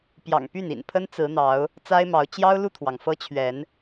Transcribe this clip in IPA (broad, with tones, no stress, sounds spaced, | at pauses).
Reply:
p j ɑ̰˨˩ ŋ p y˥˨ n ḭ˨˩ n pʰ ə˦ n t͡s ɹ̩˨˦ n̪ ɑ˨˦ ʊ̯ | t͡s a˦ ɪ̯ m ɑ˨˦ ʊ̯ t͡ɕ j ɑ˦ ʊ̯ l u˥˨ t̪ʰ w ɑ˩ ŋ f ɤ˦ t͡ɕʰ ɥ ɛ˨˦ n